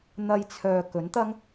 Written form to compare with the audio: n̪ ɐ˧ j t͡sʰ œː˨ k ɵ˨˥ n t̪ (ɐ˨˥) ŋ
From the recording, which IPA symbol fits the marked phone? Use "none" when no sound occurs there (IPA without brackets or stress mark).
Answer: ɐ˥